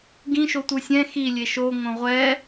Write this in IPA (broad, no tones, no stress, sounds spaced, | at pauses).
ɡ ĩ ʃ o tʷ ɯ sʲ ɛ̃ x i lʲ e ʃ o ŋ õ ʁʷ ɛ